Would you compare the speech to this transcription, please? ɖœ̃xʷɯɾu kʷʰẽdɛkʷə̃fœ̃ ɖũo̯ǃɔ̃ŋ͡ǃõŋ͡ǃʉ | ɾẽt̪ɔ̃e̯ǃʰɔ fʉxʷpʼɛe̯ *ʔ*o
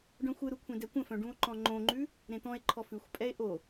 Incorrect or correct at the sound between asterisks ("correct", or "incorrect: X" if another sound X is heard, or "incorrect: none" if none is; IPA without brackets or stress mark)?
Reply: correct